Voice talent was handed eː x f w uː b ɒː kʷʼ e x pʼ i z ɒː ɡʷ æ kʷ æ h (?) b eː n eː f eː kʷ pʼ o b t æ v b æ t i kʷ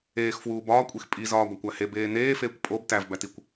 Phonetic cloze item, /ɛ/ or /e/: e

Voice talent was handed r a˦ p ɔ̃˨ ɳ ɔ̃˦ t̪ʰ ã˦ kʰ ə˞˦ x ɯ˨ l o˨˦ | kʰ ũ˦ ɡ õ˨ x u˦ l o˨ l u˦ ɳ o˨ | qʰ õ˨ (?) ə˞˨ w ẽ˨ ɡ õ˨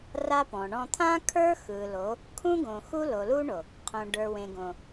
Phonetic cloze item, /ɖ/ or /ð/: ɖ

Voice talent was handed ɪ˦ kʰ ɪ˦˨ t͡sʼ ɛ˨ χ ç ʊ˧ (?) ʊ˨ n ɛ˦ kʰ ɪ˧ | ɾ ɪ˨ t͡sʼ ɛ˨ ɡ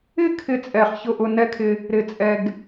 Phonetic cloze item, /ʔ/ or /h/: ʔ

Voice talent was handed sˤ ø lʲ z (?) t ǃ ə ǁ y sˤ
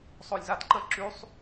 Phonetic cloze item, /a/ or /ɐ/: a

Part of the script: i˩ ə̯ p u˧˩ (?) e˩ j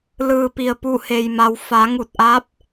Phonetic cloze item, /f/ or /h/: h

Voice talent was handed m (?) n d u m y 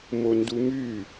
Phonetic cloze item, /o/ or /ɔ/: o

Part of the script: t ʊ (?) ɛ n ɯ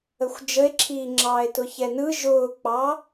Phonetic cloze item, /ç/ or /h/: ç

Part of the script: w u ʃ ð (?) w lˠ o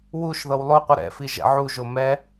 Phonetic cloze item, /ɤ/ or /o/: ɤ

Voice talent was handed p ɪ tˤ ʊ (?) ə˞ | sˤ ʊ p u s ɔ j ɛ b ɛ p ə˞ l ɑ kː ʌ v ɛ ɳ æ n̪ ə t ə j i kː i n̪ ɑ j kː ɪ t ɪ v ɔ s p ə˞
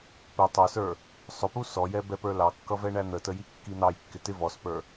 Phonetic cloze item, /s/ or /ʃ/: s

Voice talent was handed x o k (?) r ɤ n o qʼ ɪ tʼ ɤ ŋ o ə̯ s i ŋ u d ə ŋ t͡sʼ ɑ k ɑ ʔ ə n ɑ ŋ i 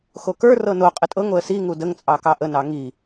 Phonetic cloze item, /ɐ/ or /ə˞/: ə˞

